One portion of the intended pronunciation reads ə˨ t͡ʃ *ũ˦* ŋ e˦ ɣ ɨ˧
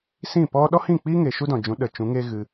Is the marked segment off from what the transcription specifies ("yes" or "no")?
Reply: yes